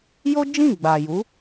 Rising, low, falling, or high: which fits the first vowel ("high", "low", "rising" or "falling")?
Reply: high